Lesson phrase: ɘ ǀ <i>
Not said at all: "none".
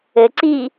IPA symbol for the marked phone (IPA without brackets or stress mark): i